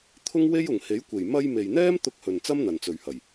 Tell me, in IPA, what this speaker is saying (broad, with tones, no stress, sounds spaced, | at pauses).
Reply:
t̪ʰ ʊ˥ ŋ w e˥ j ʊ˨˩ ŋ h e˨˥ j kʷ e˨˩ j m ɐ˧ j m e˨ j n̪ ɛː˥ m t̪ ʊ˧ k̚ h ɵ˨ n t͡s ɐ˥ m n̪ ɐ˨ n t͡s ɵ˨ ɥ h ɐ˨˩ j